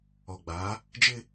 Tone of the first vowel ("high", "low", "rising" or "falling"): low